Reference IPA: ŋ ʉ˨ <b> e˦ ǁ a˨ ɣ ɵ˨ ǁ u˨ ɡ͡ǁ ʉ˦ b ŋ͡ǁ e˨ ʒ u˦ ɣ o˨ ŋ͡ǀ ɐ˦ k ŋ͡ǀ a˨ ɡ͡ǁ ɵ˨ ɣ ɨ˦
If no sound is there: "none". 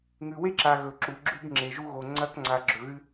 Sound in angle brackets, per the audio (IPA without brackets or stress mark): w